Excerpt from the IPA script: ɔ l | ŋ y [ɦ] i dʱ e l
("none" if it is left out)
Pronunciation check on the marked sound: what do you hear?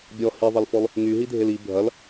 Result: ɦ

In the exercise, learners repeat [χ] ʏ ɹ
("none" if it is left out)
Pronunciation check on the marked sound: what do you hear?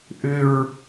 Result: ʔ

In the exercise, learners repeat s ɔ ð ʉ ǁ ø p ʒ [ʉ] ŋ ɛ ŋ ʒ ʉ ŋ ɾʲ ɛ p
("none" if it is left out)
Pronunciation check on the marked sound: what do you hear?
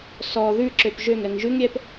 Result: ø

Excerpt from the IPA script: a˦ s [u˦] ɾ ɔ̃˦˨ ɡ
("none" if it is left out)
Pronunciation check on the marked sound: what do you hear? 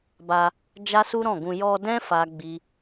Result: u˦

